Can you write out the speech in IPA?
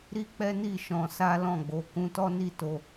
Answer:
ɾi˦k͡pɛ˦ni˦˨ ʃɔ̃˧sa˦lɔ̃˦˨ɡ͡bo˨˦ kũ˧tɔ˦ni˦˨to˧

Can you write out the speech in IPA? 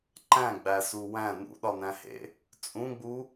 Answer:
ǃæ̃ɡ͡bæsu wæ̃ nṵɗɒnæ̃hḛ | t͡sʼũɡ͡bu

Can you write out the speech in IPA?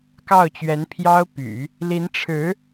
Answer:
kɑ˥˩ʊ̯t͡ɕɥɛ˧˥n pʰjɑ˥ʊ̯ py̰˨˩˦ | li˧˥nʈ͡ʂʰɻ̩˧˥

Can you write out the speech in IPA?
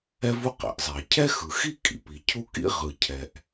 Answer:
ɛ˥vu˥qɛ̰˩ʔzˤɛ˩ə̯ cʰɛ˥xɯ˩xi˥ kʼḭ˩pi˩cʰu˥kḭ˥ ʁɯ˩cʰɛ˩ʔ

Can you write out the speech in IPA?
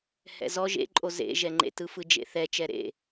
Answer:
hɛ̰zɔ ʒḛǃʼo zḛʒɛŋ͡ǃḛtɯ fɯd͡ʒḛθɛ t͡ʃɛɾḛ

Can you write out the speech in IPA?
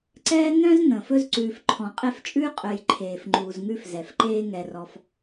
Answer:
ǀɛː˥ n̪œ̃˦z n̪ə̃ː˩fɵ˥zǀʉː˨f ǃʰɔ̃˩ qʼɛ˦ft͡ʃʼʉː˥ qʼœ˨jǃʰeː˩f ŋ͡ǃuː˩zŋʉ˦f zɛ˩fǃeː˦ŋɛ˨rɔ˨f

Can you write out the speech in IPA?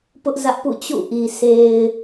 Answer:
pʊ˦ʔzä˦ʔ pṵ˦˨t͡ɕṵ˦˨ʔi˨ se˨ɪ̯

